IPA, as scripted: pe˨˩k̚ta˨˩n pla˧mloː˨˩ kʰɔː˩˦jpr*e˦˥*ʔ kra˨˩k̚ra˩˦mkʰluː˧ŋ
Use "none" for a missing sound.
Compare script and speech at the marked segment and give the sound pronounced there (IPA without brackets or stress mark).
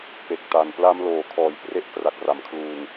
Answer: e˦˥